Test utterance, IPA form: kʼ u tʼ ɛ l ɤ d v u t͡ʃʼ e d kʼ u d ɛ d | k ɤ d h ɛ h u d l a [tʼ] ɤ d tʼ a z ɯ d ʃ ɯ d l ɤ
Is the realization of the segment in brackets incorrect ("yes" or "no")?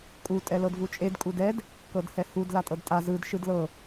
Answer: no